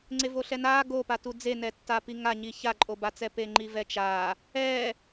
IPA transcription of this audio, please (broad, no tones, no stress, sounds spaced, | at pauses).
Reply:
ŋ͡ǀ e v o ɬ ɛ n aː ɡ o p a t u d͡z e n ɛ tː a p i ŋ a ɲ i ç a ǃʼ o b a t͡s ɛ p e ŋ͡ǃ i v ɛ t͡ʃ aː | ɛː